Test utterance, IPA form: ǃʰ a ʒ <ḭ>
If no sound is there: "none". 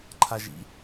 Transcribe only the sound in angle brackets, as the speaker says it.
ḭ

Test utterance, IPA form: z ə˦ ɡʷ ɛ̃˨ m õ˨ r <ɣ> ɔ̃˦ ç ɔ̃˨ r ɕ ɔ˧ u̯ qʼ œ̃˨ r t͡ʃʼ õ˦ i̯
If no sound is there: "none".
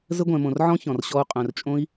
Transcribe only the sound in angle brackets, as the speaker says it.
ʕ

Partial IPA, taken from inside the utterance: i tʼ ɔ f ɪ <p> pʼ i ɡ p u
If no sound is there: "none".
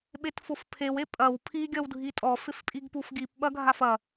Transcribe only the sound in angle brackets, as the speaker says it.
f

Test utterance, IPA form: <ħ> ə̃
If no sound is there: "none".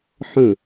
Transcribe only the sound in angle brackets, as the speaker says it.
ħ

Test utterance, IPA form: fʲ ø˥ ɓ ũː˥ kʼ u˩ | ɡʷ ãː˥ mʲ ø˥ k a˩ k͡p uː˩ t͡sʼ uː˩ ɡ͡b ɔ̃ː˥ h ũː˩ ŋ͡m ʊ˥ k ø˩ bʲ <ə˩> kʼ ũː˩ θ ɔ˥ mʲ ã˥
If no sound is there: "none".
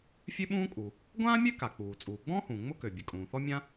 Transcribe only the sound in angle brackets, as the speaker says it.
ə˩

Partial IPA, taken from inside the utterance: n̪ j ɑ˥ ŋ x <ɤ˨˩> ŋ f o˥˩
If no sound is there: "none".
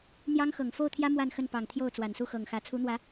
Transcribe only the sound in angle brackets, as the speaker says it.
ɤ˨˩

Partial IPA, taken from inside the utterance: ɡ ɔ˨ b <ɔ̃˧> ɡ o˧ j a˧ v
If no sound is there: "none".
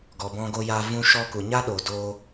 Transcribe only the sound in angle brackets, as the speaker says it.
ɔ̃˧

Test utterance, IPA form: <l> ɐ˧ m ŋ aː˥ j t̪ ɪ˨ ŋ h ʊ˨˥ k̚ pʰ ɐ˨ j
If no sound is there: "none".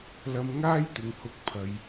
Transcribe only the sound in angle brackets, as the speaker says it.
l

